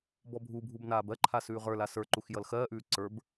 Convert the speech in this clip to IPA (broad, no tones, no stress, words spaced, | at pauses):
bɔbʱubʱub naːbɜǃʰa sʉːʁə˞la sə˞ǃux jʌlxɜːʔʉː ǀə˞b